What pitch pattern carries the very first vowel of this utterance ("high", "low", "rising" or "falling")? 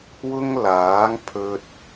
high